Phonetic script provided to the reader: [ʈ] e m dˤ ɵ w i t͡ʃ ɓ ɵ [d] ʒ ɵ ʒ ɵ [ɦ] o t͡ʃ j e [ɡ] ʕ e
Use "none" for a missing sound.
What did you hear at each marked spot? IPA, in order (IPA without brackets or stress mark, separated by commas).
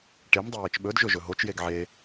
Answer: ʈ, d, ɦ, ɡ